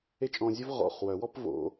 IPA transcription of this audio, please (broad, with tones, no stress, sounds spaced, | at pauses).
e˥ t͡ʃʼ ɔ̃˧ zʲ ʉ˥ v ʁ ɔ̰˨˩ χ w œ˨˩˦ w ɔ˥ p v o̰˨˩˦